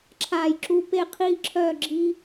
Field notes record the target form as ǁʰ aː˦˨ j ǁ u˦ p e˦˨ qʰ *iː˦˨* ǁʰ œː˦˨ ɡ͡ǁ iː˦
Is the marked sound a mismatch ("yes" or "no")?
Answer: no